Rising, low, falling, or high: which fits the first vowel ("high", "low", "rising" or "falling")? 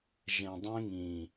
low